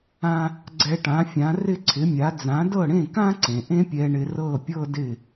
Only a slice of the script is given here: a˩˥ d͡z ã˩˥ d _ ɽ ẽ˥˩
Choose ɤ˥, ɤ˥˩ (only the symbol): ɤ˥˩